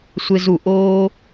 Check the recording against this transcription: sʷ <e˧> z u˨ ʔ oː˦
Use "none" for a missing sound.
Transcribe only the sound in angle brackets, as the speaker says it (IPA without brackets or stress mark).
e˧